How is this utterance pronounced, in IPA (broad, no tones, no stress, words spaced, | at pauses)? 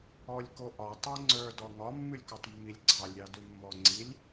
ɔlʲkoʔɒ tˤoŋ͡ǀə˞ dɔŋɒ mːʉlʲkɔtˤmːilʲɡ͡ǀɑlʲ ɾʲɑdʉmːɔŋ͡ǀilʲ